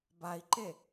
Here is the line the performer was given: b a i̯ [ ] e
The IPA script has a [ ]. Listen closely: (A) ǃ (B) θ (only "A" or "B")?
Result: A